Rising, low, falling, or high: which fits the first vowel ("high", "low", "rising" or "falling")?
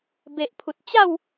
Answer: low